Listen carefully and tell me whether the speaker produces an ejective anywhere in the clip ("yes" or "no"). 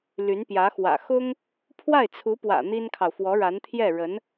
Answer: no